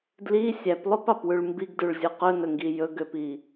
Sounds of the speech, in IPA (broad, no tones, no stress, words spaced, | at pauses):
dli sʲæplˠopɑpwʉɭ mbiɡdʉɭzʲo qɵnɵŋɡi jɵɡøpi